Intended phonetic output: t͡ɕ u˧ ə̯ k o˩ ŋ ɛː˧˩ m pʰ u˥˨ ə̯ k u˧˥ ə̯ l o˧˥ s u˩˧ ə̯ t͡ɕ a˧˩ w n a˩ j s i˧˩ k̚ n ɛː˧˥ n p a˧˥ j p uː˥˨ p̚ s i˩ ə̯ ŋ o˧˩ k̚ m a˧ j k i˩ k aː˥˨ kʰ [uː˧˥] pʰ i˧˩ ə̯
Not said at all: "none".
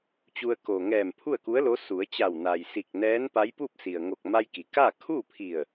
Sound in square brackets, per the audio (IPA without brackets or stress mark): uː˥˨